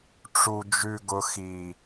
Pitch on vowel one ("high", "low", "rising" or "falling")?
low